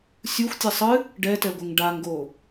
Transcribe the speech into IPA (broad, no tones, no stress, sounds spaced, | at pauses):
sʲ u xʷ tʲ ɛ sˤ ɨ | ɖ ɛ t ɛ ɡʷ ɘ ŋ ɖ a ŋ ɡ o